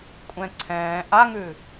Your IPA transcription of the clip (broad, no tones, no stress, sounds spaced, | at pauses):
kʷʼ ɛ̃ ǀʰ ɛ̃ː ʔ a ŋ ʉ